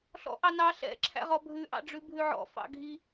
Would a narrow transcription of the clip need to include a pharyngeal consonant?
yes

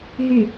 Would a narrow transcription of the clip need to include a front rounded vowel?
yes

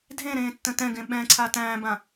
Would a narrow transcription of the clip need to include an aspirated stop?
yes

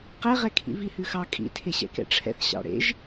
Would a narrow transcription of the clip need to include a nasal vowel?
no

